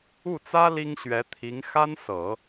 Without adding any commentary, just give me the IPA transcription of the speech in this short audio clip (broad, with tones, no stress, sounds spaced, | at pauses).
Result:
u˥˩ t͡s ä˥ l i˥ ŋ ɕ ɥ ɛ˧˥ t̪ʰ i˧˥ ŋ x a˥ n s ɤ˨˩˦